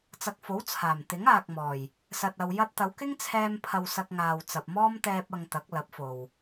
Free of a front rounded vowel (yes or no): yes